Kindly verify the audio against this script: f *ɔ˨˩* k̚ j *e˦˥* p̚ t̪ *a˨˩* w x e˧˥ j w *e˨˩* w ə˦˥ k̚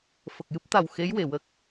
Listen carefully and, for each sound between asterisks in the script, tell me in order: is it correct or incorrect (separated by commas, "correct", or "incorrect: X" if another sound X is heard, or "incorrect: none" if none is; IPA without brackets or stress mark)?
incorrect: ə˨˩, incorrect: ɨ˦˥, correct, correct